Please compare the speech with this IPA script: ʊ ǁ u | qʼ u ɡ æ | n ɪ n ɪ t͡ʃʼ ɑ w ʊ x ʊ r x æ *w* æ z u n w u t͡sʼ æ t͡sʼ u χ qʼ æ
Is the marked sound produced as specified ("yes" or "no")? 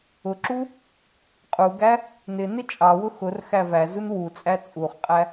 no